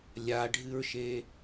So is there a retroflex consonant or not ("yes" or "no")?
yes